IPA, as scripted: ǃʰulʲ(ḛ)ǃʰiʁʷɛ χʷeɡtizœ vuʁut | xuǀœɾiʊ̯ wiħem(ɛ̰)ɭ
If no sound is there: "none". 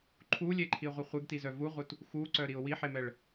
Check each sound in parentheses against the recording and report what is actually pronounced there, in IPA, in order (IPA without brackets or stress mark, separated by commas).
e, ɛ